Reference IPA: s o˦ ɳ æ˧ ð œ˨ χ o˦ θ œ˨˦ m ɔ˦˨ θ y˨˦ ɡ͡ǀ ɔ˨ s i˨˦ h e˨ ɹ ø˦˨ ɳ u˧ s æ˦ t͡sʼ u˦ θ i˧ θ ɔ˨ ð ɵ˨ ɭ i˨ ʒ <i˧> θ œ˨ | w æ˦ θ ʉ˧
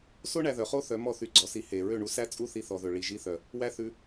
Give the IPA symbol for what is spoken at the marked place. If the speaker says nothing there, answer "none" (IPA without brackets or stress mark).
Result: i˧